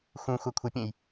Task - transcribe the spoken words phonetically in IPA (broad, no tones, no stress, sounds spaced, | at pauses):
x ũ xʷ a kʷʰ ə pʲ ẽ j